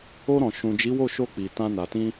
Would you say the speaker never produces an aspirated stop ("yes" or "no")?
yes